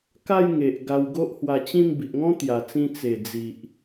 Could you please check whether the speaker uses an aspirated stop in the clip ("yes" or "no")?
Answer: no